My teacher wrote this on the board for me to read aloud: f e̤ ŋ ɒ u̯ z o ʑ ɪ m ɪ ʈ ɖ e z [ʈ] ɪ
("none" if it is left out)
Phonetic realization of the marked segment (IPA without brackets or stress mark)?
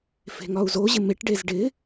ɖ